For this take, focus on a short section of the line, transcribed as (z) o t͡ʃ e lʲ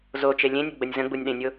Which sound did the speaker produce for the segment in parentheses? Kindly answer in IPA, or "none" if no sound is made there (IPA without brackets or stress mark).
z